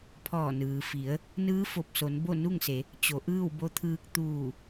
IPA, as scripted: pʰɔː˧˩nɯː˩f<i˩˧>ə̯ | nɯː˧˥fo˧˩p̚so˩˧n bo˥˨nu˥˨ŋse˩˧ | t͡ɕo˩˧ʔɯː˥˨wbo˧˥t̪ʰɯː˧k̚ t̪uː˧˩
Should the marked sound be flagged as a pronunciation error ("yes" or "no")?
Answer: no